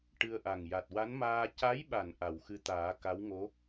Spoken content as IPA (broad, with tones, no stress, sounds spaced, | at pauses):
ʈ ɨ˧ ə̯ ʔ a˨˩ ŋ j a˨˩ t̚ w a˧˥ n m aː˧ c a˧˥ j ɓ a˨˩˨ n ʔ a˨˩˨ w x ɨ˧˥ t̪ aː˨˩˦ k a˧˥ w ŋ o˧˥